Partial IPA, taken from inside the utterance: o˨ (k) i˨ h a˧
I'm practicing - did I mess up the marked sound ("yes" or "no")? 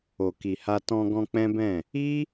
no